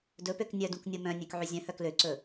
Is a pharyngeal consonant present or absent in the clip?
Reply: present